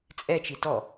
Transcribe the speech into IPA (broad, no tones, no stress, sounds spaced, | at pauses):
t͡sʼ ɛ t͡ʃ i t ɔ